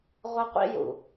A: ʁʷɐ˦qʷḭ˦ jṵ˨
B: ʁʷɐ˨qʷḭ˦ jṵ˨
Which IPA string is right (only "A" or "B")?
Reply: A